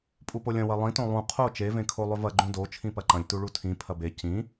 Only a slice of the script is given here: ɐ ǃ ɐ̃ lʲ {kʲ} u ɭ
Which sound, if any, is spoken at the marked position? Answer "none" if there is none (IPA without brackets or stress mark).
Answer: t